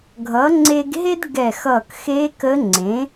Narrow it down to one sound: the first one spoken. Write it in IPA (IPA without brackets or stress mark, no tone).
ɡʱ